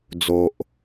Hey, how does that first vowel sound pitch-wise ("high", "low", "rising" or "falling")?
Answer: low